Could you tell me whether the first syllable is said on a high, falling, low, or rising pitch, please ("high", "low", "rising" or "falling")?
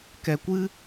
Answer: low